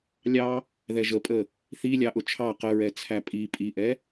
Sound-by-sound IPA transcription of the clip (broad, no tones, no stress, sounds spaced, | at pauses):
lʲ ɑ | ð ɛ ʒ ə pʼ ə | θ i lʲ ɑ ʔ ʊ t͡ʃʰ ɑ q ə ɹ ɛ t͡sʰ æ pʼ i pʼ i ʔ ɛ